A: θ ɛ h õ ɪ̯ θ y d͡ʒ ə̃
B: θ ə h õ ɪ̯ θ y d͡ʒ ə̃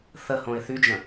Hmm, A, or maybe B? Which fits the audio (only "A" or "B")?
B